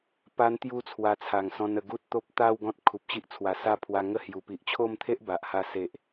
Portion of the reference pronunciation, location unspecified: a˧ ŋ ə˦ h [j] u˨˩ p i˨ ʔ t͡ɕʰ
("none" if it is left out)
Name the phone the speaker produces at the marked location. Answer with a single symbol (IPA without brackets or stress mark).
j